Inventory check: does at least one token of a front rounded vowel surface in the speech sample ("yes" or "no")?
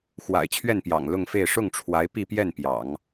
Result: no